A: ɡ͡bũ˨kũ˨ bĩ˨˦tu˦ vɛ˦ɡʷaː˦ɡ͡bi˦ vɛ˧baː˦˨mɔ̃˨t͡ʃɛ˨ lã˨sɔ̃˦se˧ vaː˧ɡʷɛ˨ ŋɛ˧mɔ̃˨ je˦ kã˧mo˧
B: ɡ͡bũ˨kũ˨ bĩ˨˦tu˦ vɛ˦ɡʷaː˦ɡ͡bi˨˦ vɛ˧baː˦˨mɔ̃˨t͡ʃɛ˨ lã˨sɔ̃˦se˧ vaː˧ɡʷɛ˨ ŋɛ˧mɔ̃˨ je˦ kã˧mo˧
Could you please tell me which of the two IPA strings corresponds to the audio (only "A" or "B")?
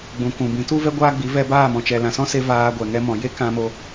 B